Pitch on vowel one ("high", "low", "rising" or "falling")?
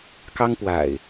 high